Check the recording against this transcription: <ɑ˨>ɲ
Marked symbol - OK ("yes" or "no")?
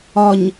no